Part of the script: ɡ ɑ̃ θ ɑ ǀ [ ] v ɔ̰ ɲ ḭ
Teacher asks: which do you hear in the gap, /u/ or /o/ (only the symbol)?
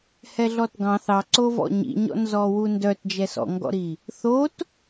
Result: o